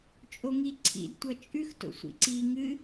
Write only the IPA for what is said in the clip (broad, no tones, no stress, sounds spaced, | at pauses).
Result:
t͡ʃʼ o ŋ i ǀʰ ḭ d tʷ ʌ t͡ʃʼ ʉ x t o̰ sʷ ḭ ǀ i ŋ ɨ